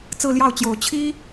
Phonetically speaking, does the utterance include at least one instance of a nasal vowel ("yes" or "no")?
no